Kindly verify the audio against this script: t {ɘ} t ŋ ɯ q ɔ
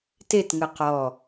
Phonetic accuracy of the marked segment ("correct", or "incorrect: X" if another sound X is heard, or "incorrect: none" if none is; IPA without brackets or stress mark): incorrect: e